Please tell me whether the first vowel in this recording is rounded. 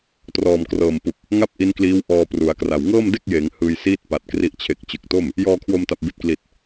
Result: yes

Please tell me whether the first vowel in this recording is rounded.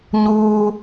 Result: yes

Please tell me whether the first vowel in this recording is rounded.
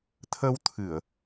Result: no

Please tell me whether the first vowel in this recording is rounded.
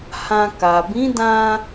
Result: no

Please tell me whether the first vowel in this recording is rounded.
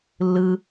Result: no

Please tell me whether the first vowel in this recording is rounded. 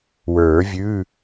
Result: no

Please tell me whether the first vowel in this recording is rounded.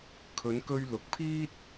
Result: yes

